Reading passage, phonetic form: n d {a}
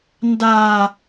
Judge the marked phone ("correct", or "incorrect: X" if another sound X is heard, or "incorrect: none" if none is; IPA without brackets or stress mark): correct